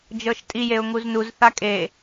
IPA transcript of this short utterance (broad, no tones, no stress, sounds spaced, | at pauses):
d͡ʒ ɤ ʃ tʼ i j e ʊ̯ ŋ u z n u z θ a kʼ e